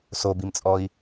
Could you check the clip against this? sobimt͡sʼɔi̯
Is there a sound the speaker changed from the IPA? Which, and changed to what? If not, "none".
none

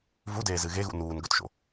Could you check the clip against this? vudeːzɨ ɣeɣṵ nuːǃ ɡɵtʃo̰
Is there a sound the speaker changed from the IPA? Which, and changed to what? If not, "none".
ǃ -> n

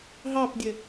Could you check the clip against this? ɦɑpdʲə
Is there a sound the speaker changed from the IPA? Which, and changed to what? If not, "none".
none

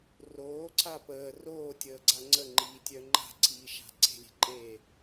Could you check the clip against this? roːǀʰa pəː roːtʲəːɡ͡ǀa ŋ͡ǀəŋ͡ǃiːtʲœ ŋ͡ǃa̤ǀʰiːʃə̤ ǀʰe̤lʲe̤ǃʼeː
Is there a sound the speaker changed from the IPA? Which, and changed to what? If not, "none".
ə̤ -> a̤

